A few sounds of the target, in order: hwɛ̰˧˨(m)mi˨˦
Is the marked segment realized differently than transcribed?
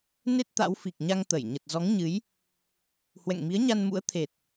yes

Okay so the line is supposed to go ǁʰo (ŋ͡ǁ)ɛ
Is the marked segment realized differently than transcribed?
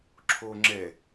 no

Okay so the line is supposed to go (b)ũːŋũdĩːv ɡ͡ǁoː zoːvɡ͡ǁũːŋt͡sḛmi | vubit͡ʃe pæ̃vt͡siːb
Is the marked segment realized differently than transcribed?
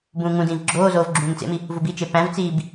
no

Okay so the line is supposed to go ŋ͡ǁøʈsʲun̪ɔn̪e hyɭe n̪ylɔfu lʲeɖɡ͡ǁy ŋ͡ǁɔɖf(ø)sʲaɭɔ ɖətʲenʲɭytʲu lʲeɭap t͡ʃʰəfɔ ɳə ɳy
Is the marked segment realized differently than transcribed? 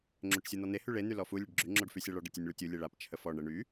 yes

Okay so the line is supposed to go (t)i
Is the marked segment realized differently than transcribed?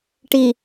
yes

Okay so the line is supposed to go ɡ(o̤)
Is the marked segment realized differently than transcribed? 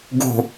no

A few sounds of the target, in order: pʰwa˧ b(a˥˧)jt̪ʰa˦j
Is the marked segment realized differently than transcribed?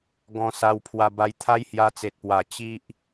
yes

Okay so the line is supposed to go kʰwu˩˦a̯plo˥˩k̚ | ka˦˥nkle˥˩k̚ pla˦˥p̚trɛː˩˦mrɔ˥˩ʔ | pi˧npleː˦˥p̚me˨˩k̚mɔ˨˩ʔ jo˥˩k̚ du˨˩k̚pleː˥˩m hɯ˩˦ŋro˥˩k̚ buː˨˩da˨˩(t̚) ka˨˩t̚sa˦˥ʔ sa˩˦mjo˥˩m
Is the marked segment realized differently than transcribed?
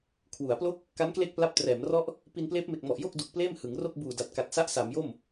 no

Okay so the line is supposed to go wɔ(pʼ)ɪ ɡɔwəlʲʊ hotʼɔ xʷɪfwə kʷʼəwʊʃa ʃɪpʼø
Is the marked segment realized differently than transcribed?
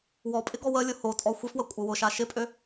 no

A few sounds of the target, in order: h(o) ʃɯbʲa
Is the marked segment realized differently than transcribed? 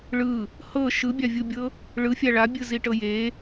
yes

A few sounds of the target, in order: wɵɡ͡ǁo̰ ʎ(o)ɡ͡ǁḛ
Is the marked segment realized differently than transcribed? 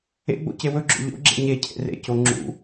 yes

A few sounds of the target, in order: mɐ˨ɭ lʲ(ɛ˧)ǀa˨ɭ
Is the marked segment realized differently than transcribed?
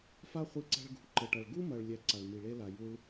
no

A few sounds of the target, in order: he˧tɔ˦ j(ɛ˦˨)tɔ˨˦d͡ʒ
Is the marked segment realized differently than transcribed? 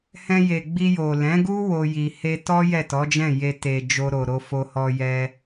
no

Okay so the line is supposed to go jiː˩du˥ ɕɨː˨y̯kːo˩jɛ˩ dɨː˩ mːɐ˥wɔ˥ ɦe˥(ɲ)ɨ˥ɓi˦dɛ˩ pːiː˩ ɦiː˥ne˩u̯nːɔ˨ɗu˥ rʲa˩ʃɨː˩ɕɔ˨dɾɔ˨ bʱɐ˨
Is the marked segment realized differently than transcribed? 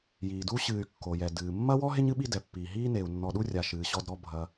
no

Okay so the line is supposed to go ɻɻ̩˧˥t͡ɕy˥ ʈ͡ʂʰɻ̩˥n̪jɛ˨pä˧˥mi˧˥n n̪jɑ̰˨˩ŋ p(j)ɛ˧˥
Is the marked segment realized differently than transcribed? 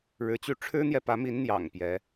no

